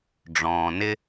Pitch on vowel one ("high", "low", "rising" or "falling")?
low